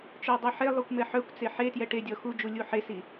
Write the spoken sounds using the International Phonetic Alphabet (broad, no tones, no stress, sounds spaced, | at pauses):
t͡ʃ œ dˤ ɛ ħ e lˠ u kʷ m ɛ ħ œ kʷ t͡s e ħ e t j ɛ ʈ e dʲ ɔ x u d͡ʒ u lʲ u ħ e s i